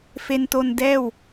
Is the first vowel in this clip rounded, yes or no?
no